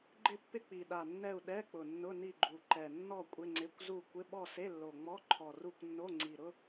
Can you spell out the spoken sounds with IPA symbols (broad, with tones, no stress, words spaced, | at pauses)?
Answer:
ɡ͡ǃɪ˦˨pːɪ˦˨ k͡pi˨˩ɗa˨˩nːɛ˦˨u̯ ɗɛ˧˥˧k͡pʊ˨˩nːʊ˧˥˧ ni˦˨ɡ͡ǃu˨˩ǃɛ˨˩ nːɔ˦˨ kʷʼɪ˧˥˧ŋ͡ǀɪ˧˥˧kʷ zu˦˨ kʷɪ˧˥˧ ɓɔ˦˨se˧˥˧lːo˨˩ ŋ͡mɔ˧˥˧ǃʰɔ˨˩ru˦˨kʷ nːo˧˥˧ŋ͡ǀi˨˩ɾʊ˧˥˧